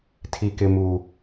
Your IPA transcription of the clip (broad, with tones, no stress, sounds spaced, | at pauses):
tʰ i˦ k ɪ˦ m u˦